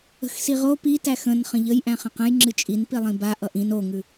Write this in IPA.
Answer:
ə̤ x s i ʁ o p i t æ x ə̃ n χ ə̃ ʎ ə j ʔ æ̃ χ ə̃ q ə̃ j ŋ͡ǁ ɨ t͡ʃʼ i n p i lˠ ĩ b a ʔ ʌ ʔ ĩ n o ŋ ʉ

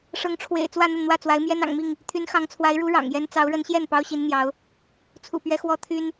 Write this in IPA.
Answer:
ʂ ɤ˨˦ ŋ ʈ͡ʂʰ w ḛ˨˩ ɪ̯ t͡s w ä˥˨ n̪ ə˥˨ n n̪ w ä˥˨ t͡s w a˨˦ ɪ̯ m j ɛ˦ n ɑ̰˨˩ ŋ m i˥˨ ŋ | t̪ʰ y˨˦ n x ɑ˨˦ ŋ t͡sʰ w a˨˦ ɪ̯ ɻ u˨˦ ɻ ɑ̰˨˩ ŋ j ɛ˦ n t͡s ɑ˨˦ ʊ̯ ɻ ə˨˦ n ɕ j ɛ˥˨ n p ɑ˦ ʊ̯ ɕ i˨˦ n n̪ j ɑ˨˦ ʊ̯ | t͡sʰ ṵ˨˩ p ɥ ɛ˨˦ x w ɔ˦ t̪ʰ y˦ n

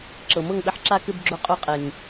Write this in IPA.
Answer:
ǁ ɤ˨ m ɤ˦˨ ŋ ɓ ɘ˧ ħ ǁ a˧ k ɘ˧ b ɡ͡ǁ o˧ qʼ u˧ qʼ e˨ ŋ

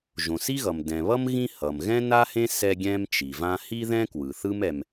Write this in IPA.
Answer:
ʒ õ˩ s i˥ ɣ ʌ˩ m d ɛ̃˩ β ʌ˥ m ɣ ĩ˦ h ʌ˩ m ɣ ɛ̃˥ n a˥ h ẽ˥ s ɛ˦ ɡʲ ɛ̃˦ m t͡ʃ i˩ v ã˦ h i˥ ð ɛ̃˥ k w ɯ˩ θ ɯ˥ m ɛ˨ m

